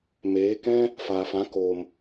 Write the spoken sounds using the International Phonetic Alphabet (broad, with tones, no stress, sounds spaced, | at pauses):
m eː˨˦ k ɛ̃˦ | f aː˨ f ã˨˦ k oː˨ m